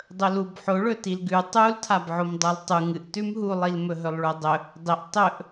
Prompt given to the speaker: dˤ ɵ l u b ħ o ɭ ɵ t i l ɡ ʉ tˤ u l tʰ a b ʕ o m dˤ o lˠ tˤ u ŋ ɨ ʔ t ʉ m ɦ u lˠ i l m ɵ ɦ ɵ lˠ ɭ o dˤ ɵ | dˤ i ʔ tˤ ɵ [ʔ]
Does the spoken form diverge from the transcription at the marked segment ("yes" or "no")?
no